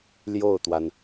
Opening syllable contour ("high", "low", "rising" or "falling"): falling